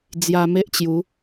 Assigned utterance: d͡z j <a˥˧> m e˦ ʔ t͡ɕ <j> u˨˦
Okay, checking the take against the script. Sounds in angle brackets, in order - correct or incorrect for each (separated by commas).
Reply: incorrect, correct